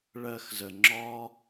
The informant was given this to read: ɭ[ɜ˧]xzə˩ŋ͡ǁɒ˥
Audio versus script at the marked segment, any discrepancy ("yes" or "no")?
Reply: no